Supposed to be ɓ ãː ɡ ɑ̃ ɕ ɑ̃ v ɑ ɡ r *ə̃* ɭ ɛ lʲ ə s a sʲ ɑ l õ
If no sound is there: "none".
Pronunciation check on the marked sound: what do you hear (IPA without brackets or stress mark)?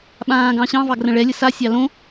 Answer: ə̃